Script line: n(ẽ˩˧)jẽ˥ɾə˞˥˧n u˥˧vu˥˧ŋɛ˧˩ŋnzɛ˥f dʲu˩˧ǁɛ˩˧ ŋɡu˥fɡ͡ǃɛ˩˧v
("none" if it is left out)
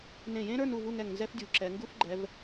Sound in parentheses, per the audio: ẽ˧˩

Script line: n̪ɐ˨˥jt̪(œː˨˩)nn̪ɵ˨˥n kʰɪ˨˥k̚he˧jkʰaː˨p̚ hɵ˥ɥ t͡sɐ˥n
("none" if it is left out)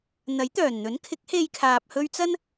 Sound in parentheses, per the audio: œː˨˩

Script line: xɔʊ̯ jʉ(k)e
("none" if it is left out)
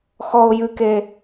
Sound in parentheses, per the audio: k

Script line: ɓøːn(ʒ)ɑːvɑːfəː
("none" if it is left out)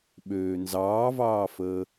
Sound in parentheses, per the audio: z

